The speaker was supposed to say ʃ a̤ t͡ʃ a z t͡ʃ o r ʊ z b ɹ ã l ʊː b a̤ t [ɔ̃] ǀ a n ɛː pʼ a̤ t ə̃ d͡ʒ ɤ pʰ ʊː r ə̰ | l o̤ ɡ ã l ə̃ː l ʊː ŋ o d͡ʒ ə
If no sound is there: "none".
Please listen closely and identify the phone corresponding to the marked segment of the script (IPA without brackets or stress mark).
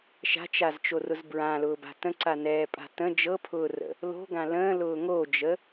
ə̃